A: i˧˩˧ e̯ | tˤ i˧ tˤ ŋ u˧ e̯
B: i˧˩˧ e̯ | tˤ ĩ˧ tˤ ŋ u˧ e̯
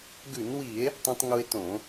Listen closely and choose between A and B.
B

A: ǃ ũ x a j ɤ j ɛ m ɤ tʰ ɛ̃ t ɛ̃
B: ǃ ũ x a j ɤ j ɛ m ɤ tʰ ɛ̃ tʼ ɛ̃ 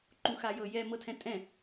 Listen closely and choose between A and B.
B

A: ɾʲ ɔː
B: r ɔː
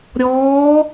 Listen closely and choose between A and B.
A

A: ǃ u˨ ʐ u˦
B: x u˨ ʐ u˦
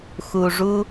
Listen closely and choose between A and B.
B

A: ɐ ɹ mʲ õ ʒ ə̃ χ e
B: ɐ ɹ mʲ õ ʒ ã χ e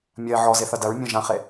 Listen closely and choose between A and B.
B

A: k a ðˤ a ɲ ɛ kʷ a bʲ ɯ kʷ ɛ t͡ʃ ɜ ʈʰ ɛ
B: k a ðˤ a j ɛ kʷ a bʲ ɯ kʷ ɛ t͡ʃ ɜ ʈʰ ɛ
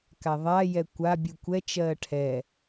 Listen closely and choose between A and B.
B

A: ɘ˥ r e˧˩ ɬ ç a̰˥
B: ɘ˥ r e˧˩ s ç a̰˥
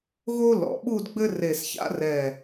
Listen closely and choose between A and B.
B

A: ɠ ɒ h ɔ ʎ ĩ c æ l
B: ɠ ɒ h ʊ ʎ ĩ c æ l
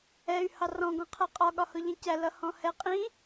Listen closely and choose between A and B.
B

